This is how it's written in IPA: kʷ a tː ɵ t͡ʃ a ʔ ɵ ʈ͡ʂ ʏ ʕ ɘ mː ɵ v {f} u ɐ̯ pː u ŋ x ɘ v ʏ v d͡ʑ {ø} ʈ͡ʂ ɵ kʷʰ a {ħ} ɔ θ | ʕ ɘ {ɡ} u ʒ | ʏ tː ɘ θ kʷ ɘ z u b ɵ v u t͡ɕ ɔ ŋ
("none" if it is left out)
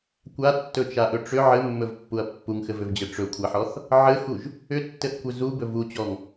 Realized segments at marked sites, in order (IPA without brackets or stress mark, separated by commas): pː, ɘ, ħ, x